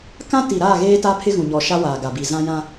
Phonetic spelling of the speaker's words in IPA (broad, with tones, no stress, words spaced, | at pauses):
kã˦ti˨ɾaː˦˨ɣeː˦ ta˦pʰɪ˦ ɣũ˨ɲɔ˨ ʃa˦waː˨ɡa˨ bi˨zã˦jã˦